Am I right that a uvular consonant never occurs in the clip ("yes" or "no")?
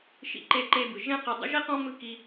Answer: no